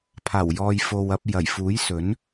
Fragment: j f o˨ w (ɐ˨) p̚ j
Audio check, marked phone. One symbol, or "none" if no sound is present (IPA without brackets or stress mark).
ɐ˧